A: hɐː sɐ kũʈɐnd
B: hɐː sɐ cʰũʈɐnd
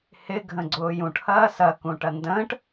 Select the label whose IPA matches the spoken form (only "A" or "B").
A